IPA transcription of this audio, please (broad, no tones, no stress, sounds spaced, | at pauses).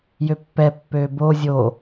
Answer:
j ø pː ɛ pː ø b o zʲ o